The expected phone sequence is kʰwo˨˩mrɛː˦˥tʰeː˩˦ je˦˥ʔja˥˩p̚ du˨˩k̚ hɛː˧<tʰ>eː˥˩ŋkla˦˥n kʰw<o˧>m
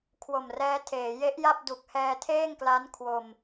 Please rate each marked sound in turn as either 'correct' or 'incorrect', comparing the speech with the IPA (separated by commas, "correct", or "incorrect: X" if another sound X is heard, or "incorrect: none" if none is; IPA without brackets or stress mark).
correct, correct